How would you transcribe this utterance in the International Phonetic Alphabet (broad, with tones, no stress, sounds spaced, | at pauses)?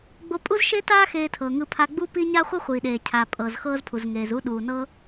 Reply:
ɡ͡b o˧ pʼ u˥ z ʃ e˥ t aː˥ x eː˧ tʰ ɤː˩ ŋ ɯ˧ pʰ a˧ ɡ͡b u˥ p i˥ ɲ a˥ χʷ ɤ˥ χʷ iː˩ ɗ eː˩ cʰ a˩ pʼ ɤ˩ z x ɤː˥ z pʰ u˩ z ŋ eː˩ z u˥ ɗ uː˩ n ɤ˥